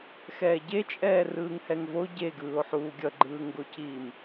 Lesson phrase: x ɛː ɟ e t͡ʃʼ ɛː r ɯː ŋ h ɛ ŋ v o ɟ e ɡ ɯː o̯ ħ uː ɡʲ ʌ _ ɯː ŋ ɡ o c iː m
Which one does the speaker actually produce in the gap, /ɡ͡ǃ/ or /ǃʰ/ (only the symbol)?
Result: ɡ͡ǃ